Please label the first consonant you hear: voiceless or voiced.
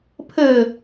voiceless